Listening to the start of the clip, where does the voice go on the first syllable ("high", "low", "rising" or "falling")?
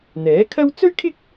rising